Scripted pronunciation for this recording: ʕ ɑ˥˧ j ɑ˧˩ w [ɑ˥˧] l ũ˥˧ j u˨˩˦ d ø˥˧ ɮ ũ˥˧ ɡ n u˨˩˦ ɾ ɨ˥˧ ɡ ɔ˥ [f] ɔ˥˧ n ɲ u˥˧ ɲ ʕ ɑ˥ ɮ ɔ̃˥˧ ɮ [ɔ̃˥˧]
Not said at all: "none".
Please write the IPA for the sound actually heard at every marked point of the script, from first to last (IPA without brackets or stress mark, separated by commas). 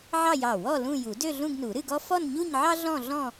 ɔ˥˧, f, ɔ̃˥˧